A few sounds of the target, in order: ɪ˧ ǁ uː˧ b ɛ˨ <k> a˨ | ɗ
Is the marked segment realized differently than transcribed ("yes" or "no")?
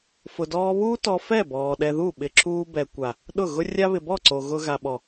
yes